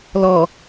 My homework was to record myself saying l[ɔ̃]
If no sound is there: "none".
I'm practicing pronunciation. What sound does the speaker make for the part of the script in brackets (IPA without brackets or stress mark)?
ɔ